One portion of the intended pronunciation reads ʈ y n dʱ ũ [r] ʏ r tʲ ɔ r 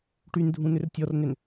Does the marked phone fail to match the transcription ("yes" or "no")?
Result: yes